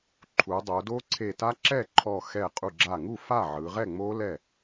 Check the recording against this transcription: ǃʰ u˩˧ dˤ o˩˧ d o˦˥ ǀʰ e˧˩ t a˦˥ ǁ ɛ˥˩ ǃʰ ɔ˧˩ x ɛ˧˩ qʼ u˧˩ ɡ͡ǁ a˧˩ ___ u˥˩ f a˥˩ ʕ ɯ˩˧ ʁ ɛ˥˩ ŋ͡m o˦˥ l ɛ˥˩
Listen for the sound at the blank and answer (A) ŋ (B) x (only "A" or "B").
A